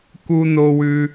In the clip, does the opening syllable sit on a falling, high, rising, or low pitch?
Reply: high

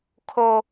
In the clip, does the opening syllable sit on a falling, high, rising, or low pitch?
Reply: low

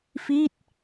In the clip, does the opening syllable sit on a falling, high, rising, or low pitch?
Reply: falling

